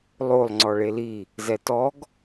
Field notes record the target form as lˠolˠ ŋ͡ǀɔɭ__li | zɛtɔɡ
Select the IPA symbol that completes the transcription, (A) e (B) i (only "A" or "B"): A